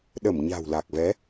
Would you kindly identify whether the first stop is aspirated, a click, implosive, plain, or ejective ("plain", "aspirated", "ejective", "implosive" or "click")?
implosive